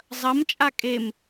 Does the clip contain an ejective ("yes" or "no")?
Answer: yes